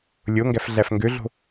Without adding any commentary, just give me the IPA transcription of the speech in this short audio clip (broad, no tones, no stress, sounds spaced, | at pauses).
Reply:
lʲ o ŋ ɡ æ f ɮ æ f ŋ ɡ ø ɮ o̤